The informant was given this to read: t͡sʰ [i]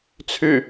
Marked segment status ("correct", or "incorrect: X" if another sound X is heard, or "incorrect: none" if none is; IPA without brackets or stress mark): incorrect: y